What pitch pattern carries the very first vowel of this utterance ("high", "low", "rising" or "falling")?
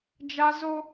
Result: high